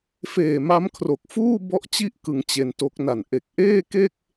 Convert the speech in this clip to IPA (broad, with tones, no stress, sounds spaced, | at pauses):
f eː˨˩ m a˦˥ m kʰ r o˨˩ k̚ f uː˥˩ b ɔ˥˩ ʔ t͡ɕ i˥˩ ʔ k ɯ˩˦ ŋ t͡ɕ e˧ n t o˦˥ k̚ n a˨˩ n ʔ e˨˩ k̚ ʔ eː˥˩ k e˥˩ k̚